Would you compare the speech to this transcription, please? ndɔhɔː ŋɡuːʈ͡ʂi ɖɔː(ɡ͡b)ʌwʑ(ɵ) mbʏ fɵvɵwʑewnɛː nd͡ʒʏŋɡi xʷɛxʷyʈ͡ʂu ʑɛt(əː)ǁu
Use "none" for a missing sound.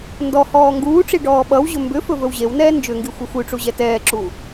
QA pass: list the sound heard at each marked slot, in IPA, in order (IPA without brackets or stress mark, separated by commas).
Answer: ɓ, ɵ, ɛː